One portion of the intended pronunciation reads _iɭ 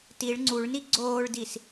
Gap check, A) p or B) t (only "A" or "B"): B